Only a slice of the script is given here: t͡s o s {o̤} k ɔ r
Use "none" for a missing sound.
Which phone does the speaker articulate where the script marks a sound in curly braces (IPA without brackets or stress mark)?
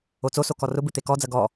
o